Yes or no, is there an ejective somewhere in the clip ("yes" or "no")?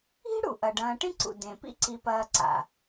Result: no